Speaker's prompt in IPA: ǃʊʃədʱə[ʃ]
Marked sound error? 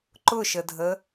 yes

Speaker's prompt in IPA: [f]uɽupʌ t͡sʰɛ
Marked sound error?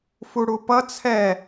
no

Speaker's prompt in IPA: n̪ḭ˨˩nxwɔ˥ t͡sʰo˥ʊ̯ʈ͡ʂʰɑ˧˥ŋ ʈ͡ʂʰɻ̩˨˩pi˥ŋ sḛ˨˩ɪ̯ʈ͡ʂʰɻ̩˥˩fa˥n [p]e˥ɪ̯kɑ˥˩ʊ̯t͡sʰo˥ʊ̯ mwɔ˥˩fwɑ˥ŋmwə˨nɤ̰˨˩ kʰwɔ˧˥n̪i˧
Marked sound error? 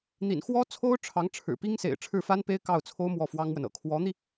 no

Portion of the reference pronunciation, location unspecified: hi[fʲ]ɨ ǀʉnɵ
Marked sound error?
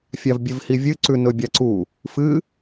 yes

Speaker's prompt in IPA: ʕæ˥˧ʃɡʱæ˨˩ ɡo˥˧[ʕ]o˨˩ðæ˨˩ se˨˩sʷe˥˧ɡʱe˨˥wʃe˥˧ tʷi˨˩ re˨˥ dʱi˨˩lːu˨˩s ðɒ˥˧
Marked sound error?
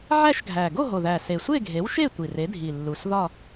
yes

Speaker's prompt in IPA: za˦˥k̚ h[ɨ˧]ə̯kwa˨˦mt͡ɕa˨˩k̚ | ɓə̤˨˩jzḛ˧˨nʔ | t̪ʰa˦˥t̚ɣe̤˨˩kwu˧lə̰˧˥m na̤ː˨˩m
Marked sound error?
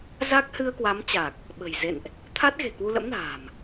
no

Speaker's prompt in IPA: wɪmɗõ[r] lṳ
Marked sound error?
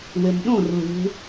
no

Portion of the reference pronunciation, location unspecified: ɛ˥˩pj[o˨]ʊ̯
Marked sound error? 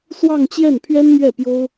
yes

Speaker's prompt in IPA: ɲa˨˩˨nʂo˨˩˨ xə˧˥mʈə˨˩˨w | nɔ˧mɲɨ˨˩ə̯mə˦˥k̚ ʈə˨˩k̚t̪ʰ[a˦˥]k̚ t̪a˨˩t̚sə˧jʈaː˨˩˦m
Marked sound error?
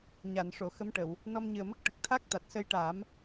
no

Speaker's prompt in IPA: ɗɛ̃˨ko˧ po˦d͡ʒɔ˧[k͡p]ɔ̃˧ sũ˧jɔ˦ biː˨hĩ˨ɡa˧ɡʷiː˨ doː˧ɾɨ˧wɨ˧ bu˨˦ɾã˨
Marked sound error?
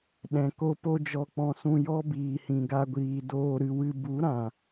no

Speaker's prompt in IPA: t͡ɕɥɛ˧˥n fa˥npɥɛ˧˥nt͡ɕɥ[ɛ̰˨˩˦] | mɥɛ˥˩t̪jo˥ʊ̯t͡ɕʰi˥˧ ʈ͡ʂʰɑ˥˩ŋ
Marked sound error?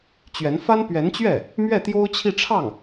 yes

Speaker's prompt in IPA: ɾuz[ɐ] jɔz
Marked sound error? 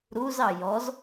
yes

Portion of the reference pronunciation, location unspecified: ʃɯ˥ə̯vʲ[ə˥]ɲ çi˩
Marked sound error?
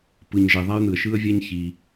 yes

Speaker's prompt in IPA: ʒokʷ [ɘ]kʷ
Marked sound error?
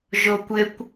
no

